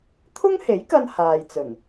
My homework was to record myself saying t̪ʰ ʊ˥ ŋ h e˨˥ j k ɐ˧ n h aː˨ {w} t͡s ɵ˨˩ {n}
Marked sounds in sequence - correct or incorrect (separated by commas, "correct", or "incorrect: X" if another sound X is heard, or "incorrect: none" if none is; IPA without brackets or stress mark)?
incorrect: j, correct